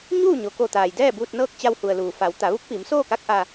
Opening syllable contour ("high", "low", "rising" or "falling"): falling